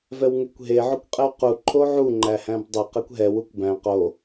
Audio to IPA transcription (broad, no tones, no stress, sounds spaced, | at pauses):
v ɛ w ŋ e kʷ ɦ e ʕ o kʷ qʼ e w q u ǃʰ o ʕ u ŋ͡ǃ æ h æ̃ b dˤ ə q ɛ kʷ ɦ ɛ w u kʷ b æ̃ q o